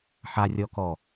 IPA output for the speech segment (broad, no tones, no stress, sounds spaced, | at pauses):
ħ a rʲ ɔ k ɔ